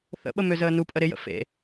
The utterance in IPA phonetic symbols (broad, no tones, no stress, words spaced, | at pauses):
θə̰ɓə møzəːnupʼə ɾɪjə̰ fḛ